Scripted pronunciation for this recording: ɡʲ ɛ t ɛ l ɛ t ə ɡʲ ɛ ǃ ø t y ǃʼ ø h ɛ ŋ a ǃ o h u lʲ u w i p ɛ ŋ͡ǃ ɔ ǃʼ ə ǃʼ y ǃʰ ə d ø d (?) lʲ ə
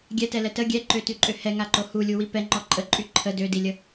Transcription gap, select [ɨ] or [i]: i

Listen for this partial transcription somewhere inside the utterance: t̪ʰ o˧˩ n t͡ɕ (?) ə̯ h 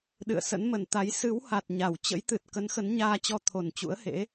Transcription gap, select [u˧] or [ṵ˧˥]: ṵ˧˥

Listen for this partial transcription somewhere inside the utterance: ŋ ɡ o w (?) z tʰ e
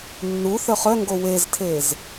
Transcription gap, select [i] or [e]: e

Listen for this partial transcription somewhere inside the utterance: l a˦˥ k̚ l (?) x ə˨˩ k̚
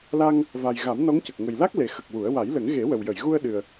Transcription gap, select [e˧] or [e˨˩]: e˨˩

